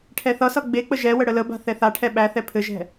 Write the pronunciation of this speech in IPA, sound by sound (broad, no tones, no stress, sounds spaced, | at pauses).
ʈʰ ɛ θ ʌ s ʌ ɡ͡b e k͡p ə ʒ ɛ w ə ɽ ə l ə b a̤ θ ɛ θ a ʈʰ ɛ ɓ æ θ ɛ pʰ ɘ ʒ ɛ̤